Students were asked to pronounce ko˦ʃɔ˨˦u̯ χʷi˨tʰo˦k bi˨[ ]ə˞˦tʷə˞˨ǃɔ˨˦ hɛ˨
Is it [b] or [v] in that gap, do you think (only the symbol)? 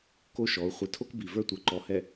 v